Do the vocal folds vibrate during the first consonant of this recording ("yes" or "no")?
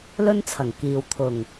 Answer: yes